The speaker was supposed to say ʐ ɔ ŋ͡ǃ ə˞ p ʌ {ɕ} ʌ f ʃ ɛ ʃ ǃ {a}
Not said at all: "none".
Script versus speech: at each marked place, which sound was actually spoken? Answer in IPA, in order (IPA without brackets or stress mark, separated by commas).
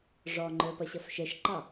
ɕ, ɑ